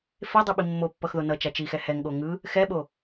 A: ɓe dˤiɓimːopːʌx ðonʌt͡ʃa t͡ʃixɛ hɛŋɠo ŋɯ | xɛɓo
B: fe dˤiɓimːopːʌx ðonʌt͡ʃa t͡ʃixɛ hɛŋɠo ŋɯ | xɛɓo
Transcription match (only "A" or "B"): B